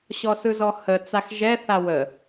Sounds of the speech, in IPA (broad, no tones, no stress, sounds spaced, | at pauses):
ɕ ɔ s ɯ z ɔ h ə t͡s a x ʒ ɛ θ a w ə